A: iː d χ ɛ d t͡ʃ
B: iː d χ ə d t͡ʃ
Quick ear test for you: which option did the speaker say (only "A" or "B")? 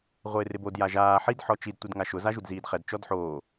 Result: A